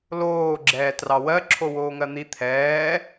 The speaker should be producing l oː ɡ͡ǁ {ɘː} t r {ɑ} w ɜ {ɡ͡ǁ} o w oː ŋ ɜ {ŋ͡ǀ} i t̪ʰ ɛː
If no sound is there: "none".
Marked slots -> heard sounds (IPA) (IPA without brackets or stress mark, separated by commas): ɛː, ɑ, ǁʰ, n̪